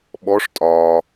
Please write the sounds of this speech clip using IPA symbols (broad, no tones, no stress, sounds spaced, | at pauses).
ɓ ɔ ʂ tʼ ɒː